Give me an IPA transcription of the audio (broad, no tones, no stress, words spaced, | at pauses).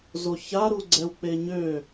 zoça ɾuɡ͡ǀɛwk͡peɲø